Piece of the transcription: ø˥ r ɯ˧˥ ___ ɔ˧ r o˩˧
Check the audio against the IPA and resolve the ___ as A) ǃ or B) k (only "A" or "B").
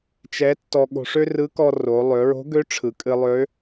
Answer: B